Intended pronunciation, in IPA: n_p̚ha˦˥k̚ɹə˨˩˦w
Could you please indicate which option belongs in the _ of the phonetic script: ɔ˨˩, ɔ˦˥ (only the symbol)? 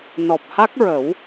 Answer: ɔ˨˩